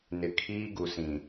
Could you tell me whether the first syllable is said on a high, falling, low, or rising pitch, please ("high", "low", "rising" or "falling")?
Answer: low